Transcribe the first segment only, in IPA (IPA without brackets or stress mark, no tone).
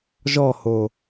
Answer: ʒ